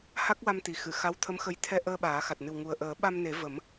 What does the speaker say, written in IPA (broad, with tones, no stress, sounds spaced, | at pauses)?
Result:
h a˦˥ k̚ w a˧ m t̪ i˨˩ x ɨ˨˩˨ x a˧˥ w t̪ʰ ə˧˥ m x ə˧˥ j t̪ʰ ɛ˧ ʔ əː˧ ɓ aː˨˩˦ x a˨˩ t̚ n ɨ˨˩ w ŋ u˨˩ ə̯ ʔ əː˨˩˦ ɓ a˧ m n e˨˩˦ v ə˨˩˦ m